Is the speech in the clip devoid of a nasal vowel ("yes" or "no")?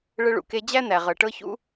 yes